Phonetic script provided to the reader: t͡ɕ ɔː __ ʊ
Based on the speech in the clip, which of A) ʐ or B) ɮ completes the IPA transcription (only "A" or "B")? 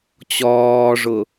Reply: A